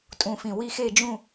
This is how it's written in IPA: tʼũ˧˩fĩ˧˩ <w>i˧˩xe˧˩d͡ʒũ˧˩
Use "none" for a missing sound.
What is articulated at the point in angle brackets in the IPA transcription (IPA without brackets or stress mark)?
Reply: w